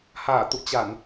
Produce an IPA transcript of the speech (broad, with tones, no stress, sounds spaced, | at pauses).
h aː˧˩ t̪ ṵ˧˨ t͡ɕ a˧˩˨ n